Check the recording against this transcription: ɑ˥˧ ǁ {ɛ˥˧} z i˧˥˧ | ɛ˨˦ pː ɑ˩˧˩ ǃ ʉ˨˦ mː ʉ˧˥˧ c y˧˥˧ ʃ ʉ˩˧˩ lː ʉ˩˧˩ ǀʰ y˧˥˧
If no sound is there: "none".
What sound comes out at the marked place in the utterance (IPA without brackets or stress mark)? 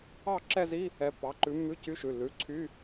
ɛ˥˧